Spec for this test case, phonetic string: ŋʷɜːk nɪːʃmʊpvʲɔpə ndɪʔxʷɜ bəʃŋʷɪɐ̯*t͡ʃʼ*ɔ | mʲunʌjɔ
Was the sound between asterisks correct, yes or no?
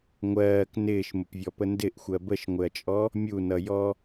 yes